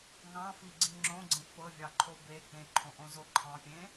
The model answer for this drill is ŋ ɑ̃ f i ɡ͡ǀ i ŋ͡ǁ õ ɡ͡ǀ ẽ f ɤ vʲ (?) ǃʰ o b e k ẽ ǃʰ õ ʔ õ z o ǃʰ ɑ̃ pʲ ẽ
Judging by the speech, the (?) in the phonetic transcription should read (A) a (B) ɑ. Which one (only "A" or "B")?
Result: B